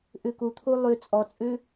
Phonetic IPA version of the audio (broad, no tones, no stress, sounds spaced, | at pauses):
ʔ ʉ k u t̪ʰ u lˠ ʉ t͡sʼ ɔ t͡sʼ ʉ